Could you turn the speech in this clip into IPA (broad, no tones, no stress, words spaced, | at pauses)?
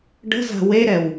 ɖə̤za̤ weɾɛw